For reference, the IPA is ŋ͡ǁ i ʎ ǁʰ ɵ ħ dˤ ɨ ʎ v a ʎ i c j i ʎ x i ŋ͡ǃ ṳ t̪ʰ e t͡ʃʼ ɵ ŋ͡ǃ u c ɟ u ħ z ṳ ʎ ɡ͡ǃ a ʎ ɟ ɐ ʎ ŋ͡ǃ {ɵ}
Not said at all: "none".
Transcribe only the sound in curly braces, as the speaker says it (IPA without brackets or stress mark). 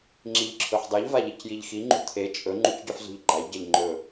ɵ